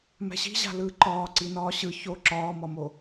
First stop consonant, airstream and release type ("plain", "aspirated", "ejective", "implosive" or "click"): click